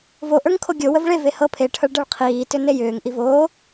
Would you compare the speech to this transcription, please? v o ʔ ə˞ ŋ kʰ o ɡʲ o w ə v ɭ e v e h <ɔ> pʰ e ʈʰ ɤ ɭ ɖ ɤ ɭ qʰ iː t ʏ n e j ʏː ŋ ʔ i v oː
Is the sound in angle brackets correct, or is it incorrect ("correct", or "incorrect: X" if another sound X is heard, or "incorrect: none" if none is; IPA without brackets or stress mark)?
incorrect: ɤ